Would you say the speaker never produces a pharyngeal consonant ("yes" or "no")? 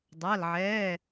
no